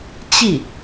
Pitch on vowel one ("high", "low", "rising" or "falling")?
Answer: falling